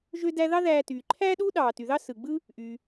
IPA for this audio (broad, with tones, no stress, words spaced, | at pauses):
ʒø˧dæ˧ ðɑ˥ ðæː˧ tyː˩ ǃʰæː˥ɗuː˥ ɗɑː˩ ty˩ðɑ˥ sɯ˩ɡ͡bɯ˥ | ʔy˩